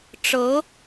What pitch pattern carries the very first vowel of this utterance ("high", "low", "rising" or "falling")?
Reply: rising